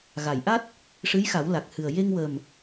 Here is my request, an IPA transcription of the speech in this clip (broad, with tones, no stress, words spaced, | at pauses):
ɣa˨˩˨jʔa˦˥t̚ | ʂɨ˧˥jxa˨˩˦wla˨˩k̚hɨ˨˩ə̯ je˧ŋwə˨˩m